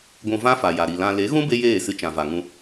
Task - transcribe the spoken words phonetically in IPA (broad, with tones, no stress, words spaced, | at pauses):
ɡʷũ˧vã˦fa˨ja˨ ɾi˨lã˧ le˨˦ɣũ˦ be˦jeː˦˨sɨ˧ t͡ʃã˨va˨ŋũ˧